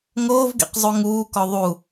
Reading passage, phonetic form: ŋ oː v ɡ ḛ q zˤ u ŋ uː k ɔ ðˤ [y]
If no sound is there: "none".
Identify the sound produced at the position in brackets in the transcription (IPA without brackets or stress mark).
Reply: u